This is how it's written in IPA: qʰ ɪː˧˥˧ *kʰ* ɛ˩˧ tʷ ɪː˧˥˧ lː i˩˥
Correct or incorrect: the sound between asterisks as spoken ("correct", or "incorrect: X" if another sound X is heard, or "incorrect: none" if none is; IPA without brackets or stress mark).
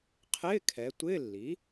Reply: correct